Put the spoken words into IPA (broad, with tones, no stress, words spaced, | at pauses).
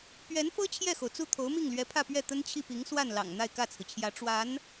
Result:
pɥɛ˧˥nfɤ˥ t͡ɕʰjɛ˥˩xo˩ʊ̯t͡su˥˩ t̪ʰo˧˥ʊ̯mi˥˩ŋlɥɛ˧˥pʰä˥˧ pɥɛ˥˩t̪ə˥nt͡ɕʰi˥˩pi˧˥ŋ swa˥˩nlɑ̰˨˩ŋ n̪a˥˧ɪ̯kä˥˩t͡sʰɹ̩˩t͡ɕʰjä˧˥ ʈ͡ʂwa˧˥n